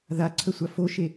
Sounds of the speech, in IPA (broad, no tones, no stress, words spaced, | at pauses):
ðaǀʰəsʷa foʃe